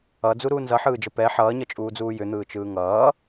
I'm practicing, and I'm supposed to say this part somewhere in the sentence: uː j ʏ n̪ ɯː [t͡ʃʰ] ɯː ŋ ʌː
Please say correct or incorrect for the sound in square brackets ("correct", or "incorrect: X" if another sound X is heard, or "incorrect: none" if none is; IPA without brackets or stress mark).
incorrect: t͡ʃ